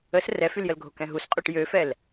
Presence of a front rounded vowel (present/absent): present